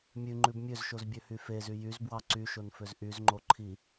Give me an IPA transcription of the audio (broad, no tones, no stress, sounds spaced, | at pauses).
mʲ ʉ ŋ͡ǃ ʉ b mʲ ø z ʃ o z bʲ ø h y f e z y j y z b w ɑ ǀ y ʃ o n f ø z ʔ y z ŋ͡ǃ o ǃʰ i